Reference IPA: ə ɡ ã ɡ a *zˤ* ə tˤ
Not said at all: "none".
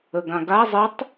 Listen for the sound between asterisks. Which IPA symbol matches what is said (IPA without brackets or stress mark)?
zˤ